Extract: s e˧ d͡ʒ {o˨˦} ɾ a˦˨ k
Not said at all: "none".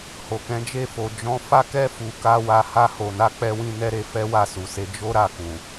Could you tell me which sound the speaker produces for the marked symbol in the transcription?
o˦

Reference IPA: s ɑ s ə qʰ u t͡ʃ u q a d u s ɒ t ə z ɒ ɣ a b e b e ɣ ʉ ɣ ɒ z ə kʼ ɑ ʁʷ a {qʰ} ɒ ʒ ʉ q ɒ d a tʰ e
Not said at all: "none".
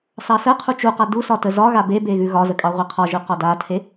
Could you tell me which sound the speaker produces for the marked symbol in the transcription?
qʰ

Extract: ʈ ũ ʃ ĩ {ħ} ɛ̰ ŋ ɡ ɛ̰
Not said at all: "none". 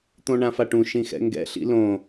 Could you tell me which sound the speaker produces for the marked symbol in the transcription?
x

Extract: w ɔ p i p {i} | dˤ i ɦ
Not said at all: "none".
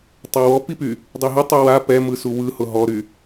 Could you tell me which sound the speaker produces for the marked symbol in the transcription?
y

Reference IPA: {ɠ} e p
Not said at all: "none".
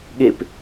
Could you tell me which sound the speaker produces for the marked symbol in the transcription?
ɠ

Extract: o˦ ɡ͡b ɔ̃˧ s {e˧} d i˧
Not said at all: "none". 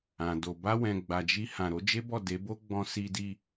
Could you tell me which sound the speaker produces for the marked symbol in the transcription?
i˧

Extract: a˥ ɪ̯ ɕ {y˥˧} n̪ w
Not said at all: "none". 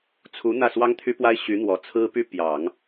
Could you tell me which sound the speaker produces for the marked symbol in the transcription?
y˧˥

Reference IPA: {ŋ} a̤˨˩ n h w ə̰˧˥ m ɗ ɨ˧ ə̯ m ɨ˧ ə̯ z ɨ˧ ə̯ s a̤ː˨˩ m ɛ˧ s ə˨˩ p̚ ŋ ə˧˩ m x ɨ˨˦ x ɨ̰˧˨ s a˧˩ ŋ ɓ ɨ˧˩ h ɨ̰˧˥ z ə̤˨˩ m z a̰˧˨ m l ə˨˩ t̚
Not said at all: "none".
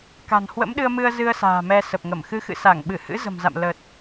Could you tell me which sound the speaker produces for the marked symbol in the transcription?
k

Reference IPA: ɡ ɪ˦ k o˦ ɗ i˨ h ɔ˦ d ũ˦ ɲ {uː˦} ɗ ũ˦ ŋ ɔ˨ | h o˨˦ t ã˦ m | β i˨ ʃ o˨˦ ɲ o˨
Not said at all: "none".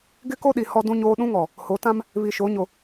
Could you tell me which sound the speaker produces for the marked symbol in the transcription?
oː˦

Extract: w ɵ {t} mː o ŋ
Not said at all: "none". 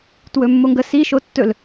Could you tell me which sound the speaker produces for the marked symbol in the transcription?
none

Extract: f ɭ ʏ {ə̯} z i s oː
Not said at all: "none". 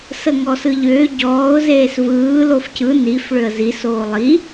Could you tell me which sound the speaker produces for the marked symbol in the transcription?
ə̯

